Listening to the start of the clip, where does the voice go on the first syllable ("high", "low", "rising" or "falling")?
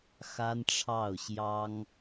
high